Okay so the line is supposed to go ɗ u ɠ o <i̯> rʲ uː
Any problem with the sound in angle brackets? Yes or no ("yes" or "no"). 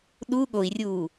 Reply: no